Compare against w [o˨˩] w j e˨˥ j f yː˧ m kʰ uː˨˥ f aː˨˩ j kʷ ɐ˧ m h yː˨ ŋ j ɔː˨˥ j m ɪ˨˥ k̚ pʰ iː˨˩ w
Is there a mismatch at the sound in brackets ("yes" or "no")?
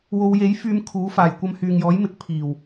yes